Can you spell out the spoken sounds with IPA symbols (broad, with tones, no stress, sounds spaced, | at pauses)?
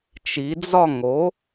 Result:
t͡ʃ i˩˧ d͡z ɒ˥˧ ŋ o˩˥